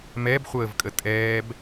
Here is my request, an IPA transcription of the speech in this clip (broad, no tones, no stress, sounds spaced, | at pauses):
m ɛ b χʷ əː v kʼ ə tʼ ɛː b